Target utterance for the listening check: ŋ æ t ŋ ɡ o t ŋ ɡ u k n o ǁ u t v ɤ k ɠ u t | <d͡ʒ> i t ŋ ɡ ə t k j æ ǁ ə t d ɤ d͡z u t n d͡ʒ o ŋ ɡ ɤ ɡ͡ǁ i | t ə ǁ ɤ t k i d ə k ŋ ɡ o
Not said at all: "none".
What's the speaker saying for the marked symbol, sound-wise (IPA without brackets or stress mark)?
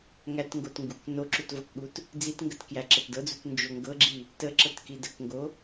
d͡z